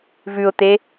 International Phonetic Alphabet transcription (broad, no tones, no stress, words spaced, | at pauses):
vʉʊ̯t̪e